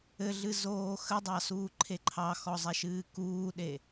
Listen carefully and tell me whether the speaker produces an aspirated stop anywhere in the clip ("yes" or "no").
yes